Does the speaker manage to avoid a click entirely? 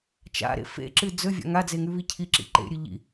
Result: no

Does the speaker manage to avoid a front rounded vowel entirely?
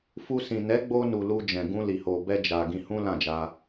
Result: yes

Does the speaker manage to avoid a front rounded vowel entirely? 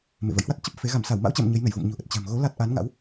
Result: yes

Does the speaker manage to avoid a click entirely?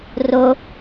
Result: yes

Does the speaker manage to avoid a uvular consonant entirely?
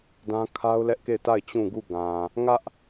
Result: yes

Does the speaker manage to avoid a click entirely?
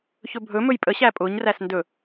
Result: yes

